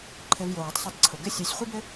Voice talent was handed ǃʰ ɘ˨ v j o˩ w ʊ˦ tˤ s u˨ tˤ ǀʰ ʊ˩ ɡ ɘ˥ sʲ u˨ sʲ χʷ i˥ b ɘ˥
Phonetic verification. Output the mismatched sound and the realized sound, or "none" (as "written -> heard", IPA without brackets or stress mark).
none